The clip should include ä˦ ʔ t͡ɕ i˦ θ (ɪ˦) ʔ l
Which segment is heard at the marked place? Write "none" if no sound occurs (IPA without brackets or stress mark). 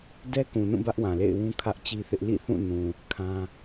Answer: ɪ˦